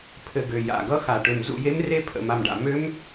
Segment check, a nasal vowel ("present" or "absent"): absent